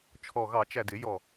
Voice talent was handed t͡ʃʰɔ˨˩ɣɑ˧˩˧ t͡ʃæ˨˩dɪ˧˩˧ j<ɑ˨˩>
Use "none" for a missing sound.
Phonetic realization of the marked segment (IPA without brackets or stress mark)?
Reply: ɔ˨˩